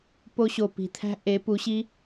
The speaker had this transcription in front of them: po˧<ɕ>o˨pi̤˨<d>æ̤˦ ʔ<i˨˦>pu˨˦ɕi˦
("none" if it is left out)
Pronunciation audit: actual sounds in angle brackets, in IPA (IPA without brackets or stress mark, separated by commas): ɕ, t̪ʰ, e˨˦